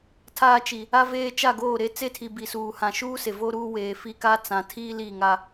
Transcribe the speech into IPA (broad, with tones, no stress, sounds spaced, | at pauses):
tʰ aː˦ t͡ʃ i˨ | a˦ v eː˦ t͡ʃ a˦˨ ɡ oː˦˨ ɾ e˦ t͡s e˦ tʰ i˨ b i˨ s uː˨ h ã˨ ʃ uː˦ s e˨ v o˦ ɾ uː˦ w eː˨ f i˦ k a˦ t͡s ã˨ tʰ iː˦ l i˦˨ ŋ a˦